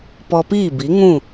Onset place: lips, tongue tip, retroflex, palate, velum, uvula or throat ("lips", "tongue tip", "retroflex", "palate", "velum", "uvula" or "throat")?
lips